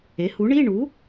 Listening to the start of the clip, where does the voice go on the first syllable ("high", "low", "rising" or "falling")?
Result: rising